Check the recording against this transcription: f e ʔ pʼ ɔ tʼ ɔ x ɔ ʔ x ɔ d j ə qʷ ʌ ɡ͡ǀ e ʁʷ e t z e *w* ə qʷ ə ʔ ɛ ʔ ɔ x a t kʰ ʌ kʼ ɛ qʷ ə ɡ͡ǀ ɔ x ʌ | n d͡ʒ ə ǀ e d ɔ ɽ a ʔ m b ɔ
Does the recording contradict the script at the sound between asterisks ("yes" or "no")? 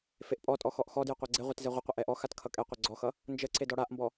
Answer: yes